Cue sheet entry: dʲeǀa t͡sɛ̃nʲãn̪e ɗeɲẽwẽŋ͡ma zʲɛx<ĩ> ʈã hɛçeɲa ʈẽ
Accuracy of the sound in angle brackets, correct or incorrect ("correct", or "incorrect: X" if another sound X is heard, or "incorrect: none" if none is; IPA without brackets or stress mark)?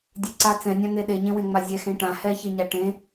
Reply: incorrect: ẽ